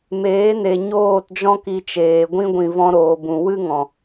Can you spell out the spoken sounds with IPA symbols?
m eː˨˦ n e˨ ɲ oː˦˨ t d͡ʒ ɔ̃˦ k i˧ t͡ʃ eː˨ ɡʷ ĩ˧ ɡʷ ĩ˨ v ɔ̃˧ ɾ oː˨ b ũ˨ w ɨ˦ ŋ ɔ̃˨

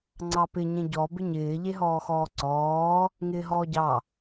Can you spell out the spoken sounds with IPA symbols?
ŋ͡ǀ ɑ p ɪ ɲ ẽ ɟ ɔ b ɪ ɲ ɪː ʎ e ɦ ɔː x ɔː ǀ ɔː | ŋ ɪː ɦ ɔː ɟ ɑ

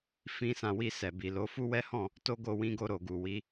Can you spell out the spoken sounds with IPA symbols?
f ĩ˧ s ã˨ w i˧ s ɛ˨ b i˨ l o˨˦ f u˦ w ɛ˦ h ɔ̃˦˨ | t o˦ ɡ o˦˨ w ĩ˧ ɡ o˧ ɾ o˨ ɡ u˨ w i˨˦

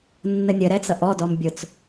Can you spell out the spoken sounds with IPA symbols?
nː ə nʲ ə ɾ ɛ t͡s ʌ ʔ ɔ d ɔ m bʲ ʊ t͡s

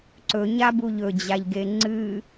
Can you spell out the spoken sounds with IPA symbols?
ǀ ɵ ɲ a b u ʎ ɵ d͡ʑ a ʎ ɡ e ŋ͡ǀ ɨ

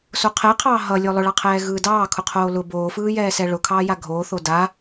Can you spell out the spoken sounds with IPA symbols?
s o qʰ ɛ qʰ ɑː ɦ ʌ lʲ o lˠ ʊ ɭ ɑ qʰ ɛː ɣ ɯː d ɑː kʰ ʊ qʰ oː l ʊ b oː f ɯː j ɛː s ɛ ɭ ʊ kʰ ɑː j a ɡʱ oː θ o d a

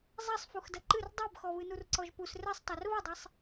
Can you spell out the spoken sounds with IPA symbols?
zˤ ɛ sˤ f u x d ɐ ǃ ɨ r dˤ ɛ b x ɔ β ɨ n u r ǀ ɔ ʒ p u s r ɛ sˤ tˤ ɛ r β ɐ dˤ ɛ sˤ

